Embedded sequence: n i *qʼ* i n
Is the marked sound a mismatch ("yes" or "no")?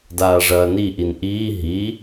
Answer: yes